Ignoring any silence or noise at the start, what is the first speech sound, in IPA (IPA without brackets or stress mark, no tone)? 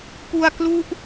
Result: p